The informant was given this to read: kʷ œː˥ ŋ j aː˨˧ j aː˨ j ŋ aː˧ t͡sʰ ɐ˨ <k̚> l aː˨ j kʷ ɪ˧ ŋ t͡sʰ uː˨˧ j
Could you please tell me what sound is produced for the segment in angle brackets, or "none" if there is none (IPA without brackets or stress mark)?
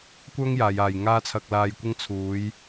k̚